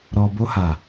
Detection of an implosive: absent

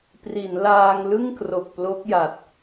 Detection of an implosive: absent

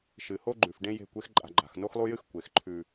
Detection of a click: present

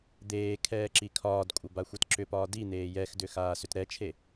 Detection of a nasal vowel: absent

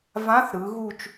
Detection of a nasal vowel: present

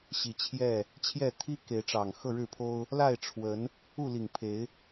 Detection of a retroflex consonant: present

